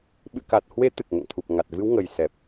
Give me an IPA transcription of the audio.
ɓɨ̰˧˨ka˨˩t̚hwe˨˦ t̪ɨ˨˩k̚ŋɛ̰˧˨ŋt̪ʰu˨˩p̚ ŋa˨˩t̚ vɨ˨˦wŋə˨˩j sɛ˨˩p̚

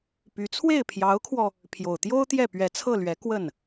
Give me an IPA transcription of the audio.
py˧˥ t͡sʰwe˥˩ɪ̯pʰjɑ˧˥ʊ̯kʰwɔ˧ | pʰjo˨˩ʊ̯t̪jo˥ʊ̯t̪jɛ˥˩ pɥɛ˧˥t͡sʰɤ˥˩lɥɛ˧˥ kwə˥˩n

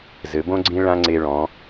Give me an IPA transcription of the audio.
zɘ˩˧bõ˥ɡ͡ǀĩ˥ ɭã˥ŋ͡ǀe˧ɭɔ̃˩˧

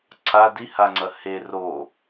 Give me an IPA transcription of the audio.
ǀʰa dihaŋ͡ǀɐ he ro

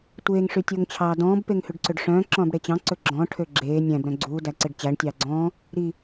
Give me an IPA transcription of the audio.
tʷeːŋ ʂytʲoŋt͡ɕʰɑːdɔ̃ːb peŋhʉɖǀøɖʂœ̃ː ǁɔ̃ːbɽet͡ɕɑ̃ ǀɵɡ͡ǁɔ̃ ʈʰøɡ͡ǁeː nʲæ̃b ɾœ̃ɡ͡ǀuː dæǀeɖt͡ɕæɳ tʲɑːɡ͡ǀɔ̃ː | ɾi

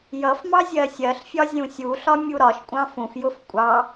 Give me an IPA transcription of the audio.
jʌfmɑ zʲɜsʲɜɬfʲɒ zʲũsʲuɬɒ mʲuɾɒʃkʷʼɑ̃ fũfjʊf kʷʼɑ

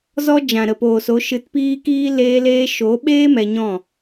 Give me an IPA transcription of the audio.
zɔ˧ d͡ʒã˨ɾə˨poː˨so˨˦ ʃɨ˧tpiː˦kiː˦ leː˧leː˧ʃo˨˦ɓeː˦ mɛ˧ɲɔ̃˦˨

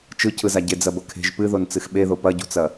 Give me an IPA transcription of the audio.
t͡ʃɯcʰɯza ɟed͡zɐbɤkʰe̤ʒ pɨðon t͡sɨxɓeðo pɐɟṳt͡sɐ

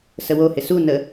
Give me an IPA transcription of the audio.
səwohɪ su nə

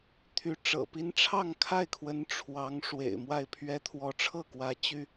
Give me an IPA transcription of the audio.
t̪ʰy˧˥ ʈ͡ʂɤ̰˨˩pi˥n ʈ͡ʂʰɑ˥˧ŋkʰa˥˩ɪ̯kʰwə˧˥n ʈ͡ʂʰwɑ˧˥ŋ ʂwḛ˨˩ɪ̯mwa˥˩ɪ̯pʰɥɛ˥ t̪ʰwɔ˧˥ʈ͡ʂʰɤ˥˩kwä˧˥ t͡ɕy˥

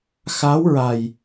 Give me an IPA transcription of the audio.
xa˧˥wɹa˨˩j

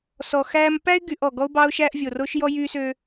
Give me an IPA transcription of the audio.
sɔ˨xæ˦m pæ˦ɪ̯ɡy˨ʔ ɔ˨ ɡɔ˦ʊ̯bɑ˦ʊ̯ʃæ˦ʔ vʲo˨ro˦ʃjɔ˦ jy˦sø˦

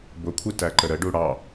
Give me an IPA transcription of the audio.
bʊkʷʰitæǃə ɾəɖu ɽɑ

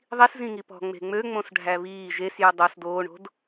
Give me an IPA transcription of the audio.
ðˤis zĩŋipɔ̤ ŋ͡me̤ŋ͡møŋ͡mõs ɖʱæβiː ʒes jʉdˤos doːɳo̤d

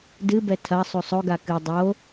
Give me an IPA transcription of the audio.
dɨbɛ tʰɐ sˤusˤoɡa kɨ dˤo

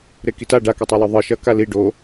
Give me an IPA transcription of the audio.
ɾekita ɖakʉtˤelʉ ðˤɨʃɐ kali ɖo

